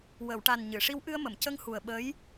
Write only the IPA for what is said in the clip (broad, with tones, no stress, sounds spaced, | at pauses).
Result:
w ə˨˩˨ w ʈ a˨˩ n ɲ ɨ˨˩˨ ʂ i˧˥ w ʔ ɨ˧ ə̯ m ə˨˩˨ m c ə˧ ŋ h u˨˩ ə̯ ɓ ə˧˥ j